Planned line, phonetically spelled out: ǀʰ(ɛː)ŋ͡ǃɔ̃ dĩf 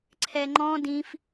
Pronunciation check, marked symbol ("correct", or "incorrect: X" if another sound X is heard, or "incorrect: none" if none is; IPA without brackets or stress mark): incorrect: ɛ